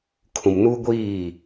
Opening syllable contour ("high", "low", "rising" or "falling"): low